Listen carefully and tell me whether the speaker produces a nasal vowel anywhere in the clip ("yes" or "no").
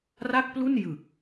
no